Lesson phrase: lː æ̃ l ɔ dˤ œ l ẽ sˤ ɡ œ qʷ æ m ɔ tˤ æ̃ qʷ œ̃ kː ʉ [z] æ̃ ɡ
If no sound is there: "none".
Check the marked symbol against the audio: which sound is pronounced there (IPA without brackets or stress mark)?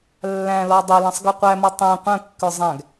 zˤ